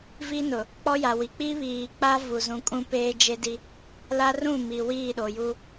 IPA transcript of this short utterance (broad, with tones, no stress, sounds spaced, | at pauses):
v i˦ n ʊ˨ | k͡p ɔ˦ j a˨ w i˨ k͡p i˦ β iː˨ k͡p a˦ v u˨ z ũ˨ kʼ ũ˦ p eː˦ d͡ʒ e˦ d i˦ | l a˦ r ũ˦˨ m i˨ w iː˦˨ ɗ o˨ j u˦